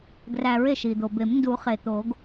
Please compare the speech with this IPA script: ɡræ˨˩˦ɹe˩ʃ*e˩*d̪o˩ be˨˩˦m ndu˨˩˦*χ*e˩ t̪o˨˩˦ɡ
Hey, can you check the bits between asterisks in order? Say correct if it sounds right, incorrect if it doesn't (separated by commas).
incorrect, correct